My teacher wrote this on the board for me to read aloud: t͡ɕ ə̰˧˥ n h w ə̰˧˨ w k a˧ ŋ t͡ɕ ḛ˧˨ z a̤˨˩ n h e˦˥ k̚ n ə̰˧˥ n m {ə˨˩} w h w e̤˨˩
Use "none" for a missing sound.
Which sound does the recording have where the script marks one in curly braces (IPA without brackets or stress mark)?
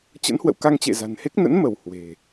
ə˧˩